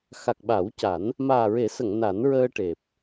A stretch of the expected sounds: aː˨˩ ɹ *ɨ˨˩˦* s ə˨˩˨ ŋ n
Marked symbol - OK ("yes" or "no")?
no